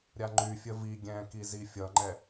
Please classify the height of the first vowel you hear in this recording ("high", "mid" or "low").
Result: low